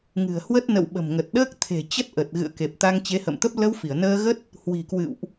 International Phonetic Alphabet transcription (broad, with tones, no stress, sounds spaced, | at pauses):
ŋ ɨ̤˨˩ ə̯ h w ə˦˥ t̚ n ə̰˧˨ w ɓ ə̤˨˩ m ŋ ə˨˩ t̚ ɗ əː˦˥ k̚ t̪ʰ e̤˨˩ t͡ɕ ə˦˥ t̚ ʔ ə˨˩ t̚ ɣ ɨ̰˧˨ ə̯ k e˨˩ p̚ t̪ a˧ ŋ t͡ɕ e˨˦ h ə̰˧˨ m t̪ ə˦˥ p̚ l ə˧ w f i˧˩ ə̯ n əː˧ ɣ ə˦˥ t̚ | h w i̤˨˩ k w ɨ̰˧˨ w ʔ